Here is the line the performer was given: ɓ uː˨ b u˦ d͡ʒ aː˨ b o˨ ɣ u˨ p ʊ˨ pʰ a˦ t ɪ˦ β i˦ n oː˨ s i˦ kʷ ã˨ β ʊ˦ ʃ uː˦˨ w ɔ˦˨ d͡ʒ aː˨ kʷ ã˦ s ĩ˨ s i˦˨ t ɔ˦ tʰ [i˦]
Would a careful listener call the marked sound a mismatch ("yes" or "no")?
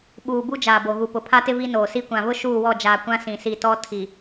yes